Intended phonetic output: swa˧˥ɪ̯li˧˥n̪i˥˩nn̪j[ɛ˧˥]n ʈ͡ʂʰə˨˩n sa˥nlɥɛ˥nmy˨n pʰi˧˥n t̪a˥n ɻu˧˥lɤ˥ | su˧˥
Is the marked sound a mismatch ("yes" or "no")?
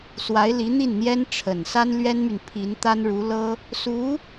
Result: yes